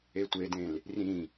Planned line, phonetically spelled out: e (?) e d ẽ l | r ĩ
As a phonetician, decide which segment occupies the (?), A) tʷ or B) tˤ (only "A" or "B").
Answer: A